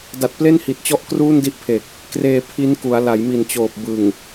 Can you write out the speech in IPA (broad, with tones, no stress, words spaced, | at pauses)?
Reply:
da˨˩t̚ple˥˩nhi˨˩t̚t͡ɕɔ˦˥ʔ kruː˥˩ndi˥˩ʔpʰe˨˩k̚ | kreː˧ pʰi˦˥nku˩˦a̯ la˩˦jmi˨˩n t͡ɕoː˨˩p̚bɯ˨˩ŋ